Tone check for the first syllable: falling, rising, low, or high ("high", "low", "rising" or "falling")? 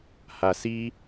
low